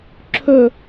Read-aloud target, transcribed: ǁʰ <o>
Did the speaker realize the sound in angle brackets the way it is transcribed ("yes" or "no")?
no